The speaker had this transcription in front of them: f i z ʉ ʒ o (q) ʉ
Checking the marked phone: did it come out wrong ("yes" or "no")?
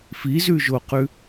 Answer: no